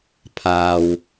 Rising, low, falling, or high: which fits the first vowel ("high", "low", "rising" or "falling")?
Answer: low